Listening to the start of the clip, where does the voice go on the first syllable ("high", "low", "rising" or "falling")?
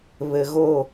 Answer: low